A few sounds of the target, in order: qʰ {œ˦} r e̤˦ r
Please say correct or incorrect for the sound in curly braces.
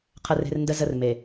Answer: incorrect